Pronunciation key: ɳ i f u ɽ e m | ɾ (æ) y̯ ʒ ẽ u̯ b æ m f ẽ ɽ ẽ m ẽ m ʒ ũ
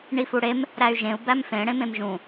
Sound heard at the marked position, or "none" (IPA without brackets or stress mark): æ